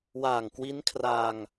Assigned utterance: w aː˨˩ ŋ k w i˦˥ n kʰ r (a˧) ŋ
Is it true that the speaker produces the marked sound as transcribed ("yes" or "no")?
yes